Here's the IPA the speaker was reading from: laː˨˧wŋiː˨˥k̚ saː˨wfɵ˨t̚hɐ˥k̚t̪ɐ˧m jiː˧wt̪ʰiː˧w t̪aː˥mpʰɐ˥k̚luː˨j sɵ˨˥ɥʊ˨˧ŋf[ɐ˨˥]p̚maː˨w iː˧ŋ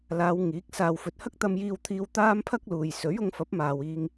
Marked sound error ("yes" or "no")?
no